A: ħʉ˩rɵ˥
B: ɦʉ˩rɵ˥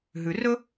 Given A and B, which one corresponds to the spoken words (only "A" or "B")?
B